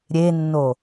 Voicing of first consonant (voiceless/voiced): voiced